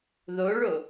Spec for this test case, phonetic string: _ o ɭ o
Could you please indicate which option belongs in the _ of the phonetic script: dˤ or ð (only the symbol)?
ð